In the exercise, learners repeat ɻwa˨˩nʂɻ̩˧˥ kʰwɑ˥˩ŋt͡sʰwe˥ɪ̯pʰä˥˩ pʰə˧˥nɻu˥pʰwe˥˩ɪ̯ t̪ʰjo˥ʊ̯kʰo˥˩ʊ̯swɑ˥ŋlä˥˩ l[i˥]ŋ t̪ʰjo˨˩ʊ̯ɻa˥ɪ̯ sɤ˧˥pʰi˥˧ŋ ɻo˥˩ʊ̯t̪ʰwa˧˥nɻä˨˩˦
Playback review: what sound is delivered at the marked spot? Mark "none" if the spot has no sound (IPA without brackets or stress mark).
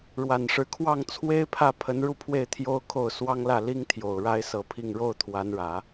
i˥